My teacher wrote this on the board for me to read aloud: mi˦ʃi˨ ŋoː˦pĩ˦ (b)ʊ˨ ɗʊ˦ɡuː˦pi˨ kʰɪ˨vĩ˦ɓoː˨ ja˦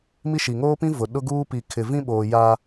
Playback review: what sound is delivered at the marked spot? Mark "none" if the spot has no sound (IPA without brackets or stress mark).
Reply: v